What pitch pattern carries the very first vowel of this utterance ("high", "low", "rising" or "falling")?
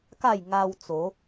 falling